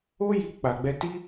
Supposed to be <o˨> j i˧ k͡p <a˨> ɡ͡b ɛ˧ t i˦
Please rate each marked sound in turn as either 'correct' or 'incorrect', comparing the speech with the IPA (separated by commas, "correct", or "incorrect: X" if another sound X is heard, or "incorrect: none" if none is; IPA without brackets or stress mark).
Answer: incorrect: o˦, correct